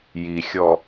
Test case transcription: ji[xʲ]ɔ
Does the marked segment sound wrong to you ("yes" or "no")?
no